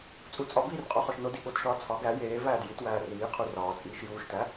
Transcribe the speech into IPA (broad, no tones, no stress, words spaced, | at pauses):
t͡sʼu t͡sʼɒbiːr qʼoχɒʃnodi ɠotʃɒː t͡sʰɒ ɡæ jeː væːdjitwæː riːqʰu rɒː t͡sʼiːʃjuːʃtæ